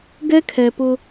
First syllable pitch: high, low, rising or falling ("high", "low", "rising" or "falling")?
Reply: high